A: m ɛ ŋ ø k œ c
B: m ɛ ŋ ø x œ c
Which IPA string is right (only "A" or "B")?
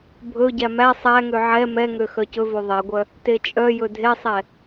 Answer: B